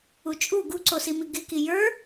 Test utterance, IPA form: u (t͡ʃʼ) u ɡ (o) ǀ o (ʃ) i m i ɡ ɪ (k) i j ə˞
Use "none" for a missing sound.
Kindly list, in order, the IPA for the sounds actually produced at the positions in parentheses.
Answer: t͡ʃʼ, u, s, k

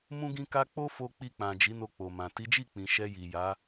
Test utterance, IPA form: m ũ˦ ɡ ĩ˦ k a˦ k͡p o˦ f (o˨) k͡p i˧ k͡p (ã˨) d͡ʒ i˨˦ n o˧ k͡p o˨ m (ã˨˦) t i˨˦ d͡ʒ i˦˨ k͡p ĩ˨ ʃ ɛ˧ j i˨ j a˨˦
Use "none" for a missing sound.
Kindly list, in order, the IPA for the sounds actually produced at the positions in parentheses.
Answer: o˧, ã˨, ã˨

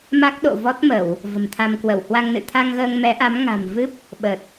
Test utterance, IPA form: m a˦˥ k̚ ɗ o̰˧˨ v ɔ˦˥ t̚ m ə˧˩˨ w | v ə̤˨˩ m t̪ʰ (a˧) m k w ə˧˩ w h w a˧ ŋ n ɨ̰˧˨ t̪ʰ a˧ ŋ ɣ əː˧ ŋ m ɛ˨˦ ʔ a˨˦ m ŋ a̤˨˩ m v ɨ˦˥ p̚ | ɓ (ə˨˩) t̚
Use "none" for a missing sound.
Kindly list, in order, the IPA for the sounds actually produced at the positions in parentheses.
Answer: a˧, ə˨˩

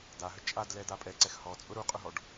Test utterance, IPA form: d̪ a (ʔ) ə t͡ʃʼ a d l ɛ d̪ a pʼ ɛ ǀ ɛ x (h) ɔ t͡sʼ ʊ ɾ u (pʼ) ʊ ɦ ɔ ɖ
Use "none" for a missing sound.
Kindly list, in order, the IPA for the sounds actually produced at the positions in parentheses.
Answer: ɦ, h, qʼ

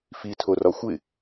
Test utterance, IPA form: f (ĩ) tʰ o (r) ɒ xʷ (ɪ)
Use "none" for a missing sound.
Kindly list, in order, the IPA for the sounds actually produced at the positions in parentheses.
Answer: i, r, ɪ

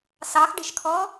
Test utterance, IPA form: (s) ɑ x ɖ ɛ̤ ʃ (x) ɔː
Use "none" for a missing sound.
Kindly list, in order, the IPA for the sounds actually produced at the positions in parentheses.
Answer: s, kʰ

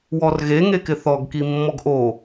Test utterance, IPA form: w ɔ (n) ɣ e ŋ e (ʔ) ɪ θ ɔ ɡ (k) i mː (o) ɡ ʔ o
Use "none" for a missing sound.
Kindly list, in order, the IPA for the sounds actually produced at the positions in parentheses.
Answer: r, k, k, ɔ

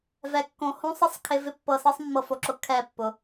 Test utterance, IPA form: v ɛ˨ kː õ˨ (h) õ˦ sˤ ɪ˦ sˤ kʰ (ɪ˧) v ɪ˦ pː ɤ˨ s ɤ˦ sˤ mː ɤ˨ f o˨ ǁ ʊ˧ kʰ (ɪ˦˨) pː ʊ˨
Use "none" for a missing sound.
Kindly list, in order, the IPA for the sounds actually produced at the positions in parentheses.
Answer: h, ɪ˧, ɛ˦˨

